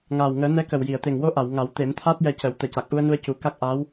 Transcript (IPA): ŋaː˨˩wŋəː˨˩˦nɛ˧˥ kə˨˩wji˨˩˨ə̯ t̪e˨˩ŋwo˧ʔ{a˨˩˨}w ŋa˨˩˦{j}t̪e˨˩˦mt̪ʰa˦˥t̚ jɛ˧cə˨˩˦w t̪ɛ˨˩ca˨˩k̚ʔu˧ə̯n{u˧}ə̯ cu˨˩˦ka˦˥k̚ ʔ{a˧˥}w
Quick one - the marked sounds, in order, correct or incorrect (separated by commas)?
correct, incorrect, correct, correct